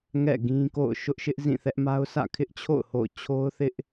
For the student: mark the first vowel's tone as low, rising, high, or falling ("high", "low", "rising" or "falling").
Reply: falling